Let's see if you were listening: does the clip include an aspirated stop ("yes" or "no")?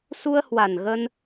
no